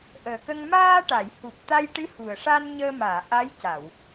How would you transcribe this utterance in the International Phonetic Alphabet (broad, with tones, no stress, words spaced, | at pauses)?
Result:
ʔəː˨˩kə˧ŋ maː˧ ʈa˨˩˨j hu˨˩p̚t̪a˧jʈɨ˧˥ hu˨˩ə̯ʂa˧nɲəː˧maː˨˩˨ ʔa˧˥jca˨˩˨w